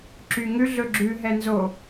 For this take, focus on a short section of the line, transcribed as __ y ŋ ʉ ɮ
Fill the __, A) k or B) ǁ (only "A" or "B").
B